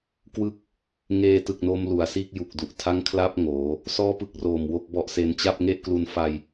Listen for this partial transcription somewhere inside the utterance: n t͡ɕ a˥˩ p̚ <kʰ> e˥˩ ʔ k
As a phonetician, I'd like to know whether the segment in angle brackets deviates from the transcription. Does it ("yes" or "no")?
yes